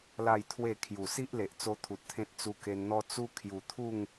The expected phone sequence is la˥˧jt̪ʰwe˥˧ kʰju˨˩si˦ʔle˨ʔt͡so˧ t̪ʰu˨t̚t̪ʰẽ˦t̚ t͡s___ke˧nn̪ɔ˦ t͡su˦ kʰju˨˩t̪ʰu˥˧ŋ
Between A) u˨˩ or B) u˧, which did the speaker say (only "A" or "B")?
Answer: B